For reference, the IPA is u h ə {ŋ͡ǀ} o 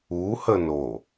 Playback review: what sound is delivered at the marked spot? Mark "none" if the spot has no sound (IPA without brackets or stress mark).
n